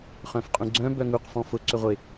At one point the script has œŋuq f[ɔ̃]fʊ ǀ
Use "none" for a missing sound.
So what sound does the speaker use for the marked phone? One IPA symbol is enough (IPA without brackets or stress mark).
ɔ̃